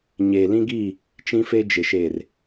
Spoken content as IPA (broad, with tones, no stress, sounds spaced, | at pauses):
ɲ eː˨ l ĩ˦ ɡ iː˦˨ | t͡ʃ ĩ˦ f e˦ d͡ʒ ɪ˨ ʃ eː˨ r